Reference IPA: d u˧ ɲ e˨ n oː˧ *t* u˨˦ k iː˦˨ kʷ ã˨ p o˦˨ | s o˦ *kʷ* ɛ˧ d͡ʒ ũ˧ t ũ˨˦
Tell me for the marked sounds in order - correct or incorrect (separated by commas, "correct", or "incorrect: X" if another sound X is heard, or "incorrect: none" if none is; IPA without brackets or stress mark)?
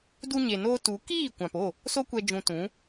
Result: correct, correct